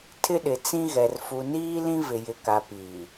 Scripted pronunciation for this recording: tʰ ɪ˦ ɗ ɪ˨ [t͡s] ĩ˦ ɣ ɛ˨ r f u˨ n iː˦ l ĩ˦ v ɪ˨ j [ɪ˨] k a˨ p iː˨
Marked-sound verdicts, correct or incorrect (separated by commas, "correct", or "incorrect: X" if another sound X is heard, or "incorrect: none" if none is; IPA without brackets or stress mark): correct, correct